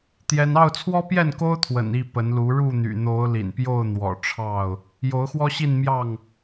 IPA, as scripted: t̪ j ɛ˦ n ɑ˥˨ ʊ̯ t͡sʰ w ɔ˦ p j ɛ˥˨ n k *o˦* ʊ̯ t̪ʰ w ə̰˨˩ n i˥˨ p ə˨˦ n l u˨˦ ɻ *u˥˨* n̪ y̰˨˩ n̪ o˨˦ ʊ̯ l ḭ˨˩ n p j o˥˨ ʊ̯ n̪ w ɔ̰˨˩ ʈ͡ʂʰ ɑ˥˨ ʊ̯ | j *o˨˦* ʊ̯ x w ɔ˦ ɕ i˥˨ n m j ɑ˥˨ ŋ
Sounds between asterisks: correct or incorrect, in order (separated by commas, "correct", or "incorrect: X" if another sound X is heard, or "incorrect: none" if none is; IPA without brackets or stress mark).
correct, correct, correct